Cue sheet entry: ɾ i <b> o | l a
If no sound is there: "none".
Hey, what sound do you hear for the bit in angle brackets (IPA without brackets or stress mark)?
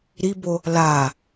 b